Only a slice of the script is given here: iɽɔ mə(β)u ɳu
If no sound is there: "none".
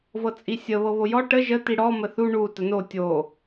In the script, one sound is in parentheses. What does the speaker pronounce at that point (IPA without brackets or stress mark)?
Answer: θ